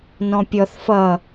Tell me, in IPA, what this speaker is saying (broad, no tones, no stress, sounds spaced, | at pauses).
n ɔ̃ pʲ ɔ θ f ʌ